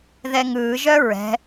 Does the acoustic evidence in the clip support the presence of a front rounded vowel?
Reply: yes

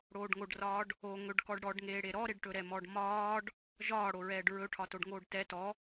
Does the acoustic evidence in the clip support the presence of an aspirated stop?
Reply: yes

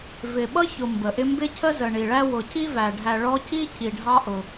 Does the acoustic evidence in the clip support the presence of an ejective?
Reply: no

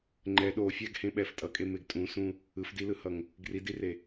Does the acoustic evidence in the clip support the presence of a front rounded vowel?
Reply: no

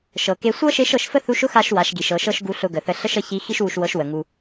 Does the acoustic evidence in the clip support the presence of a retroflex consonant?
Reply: no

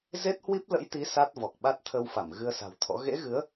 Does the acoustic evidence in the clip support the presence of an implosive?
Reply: yes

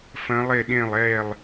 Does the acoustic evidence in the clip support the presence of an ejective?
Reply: no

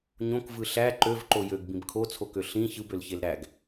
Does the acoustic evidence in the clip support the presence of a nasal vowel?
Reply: yes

